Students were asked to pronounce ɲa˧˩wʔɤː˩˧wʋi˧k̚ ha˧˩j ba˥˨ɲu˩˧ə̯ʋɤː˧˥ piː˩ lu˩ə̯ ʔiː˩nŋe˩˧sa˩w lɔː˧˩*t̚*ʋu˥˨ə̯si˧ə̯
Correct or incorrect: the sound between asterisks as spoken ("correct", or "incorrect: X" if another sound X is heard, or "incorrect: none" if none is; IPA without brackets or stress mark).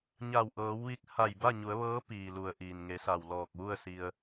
incorrect: k̚